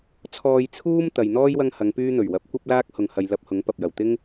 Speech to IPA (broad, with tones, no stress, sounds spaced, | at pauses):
t͡sʰ ɔː˧ j t͡sʰ uː˥ m t̪ ɐ˨ j n̪ ɔː˥ j w ɐ˥ ŋ h ɐ˨˧ ŋ p yː˥ n̪ ɵ˨˩ ɥ w ɐ˨˥ p̚ kʷ ɐ˥ p̚ l aː˥ k̚ h ʊ˨ ŋ h ɐ˨ j l ɐ˧ p̚ h ʊ˨˥ ŋ p ɐ˨ p̚ j ɐ˨˩ w t̪ ɪ˥ ŋ